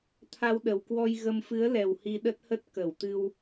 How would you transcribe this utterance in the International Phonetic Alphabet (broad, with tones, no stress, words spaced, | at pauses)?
t̪ʰa˧wɗə˨˩wkwɔ˧jɣə˧m fɨ˨˦ə̯lɛ˨˩w hi˧ɗə˦˥t̚hə˦˥t̚ kə˧˩wt̪ɨ˧w